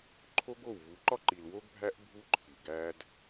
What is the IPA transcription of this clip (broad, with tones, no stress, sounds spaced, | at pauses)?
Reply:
ǃʰ o˦ ɡ o˦˨ w v u˨˦ ǃ ɒ˦ ǃ i˨ l w o˦ ɡ bʱ æ˦ ʔ bʱ u˦ ǃʰ i˨ ɡ æ˦ d